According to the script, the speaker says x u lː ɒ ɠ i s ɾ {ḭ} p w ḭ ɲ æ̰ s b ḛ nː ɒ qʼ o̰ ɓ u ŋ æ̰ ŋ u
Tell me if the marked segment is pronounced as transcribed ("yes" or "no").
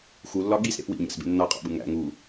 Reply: no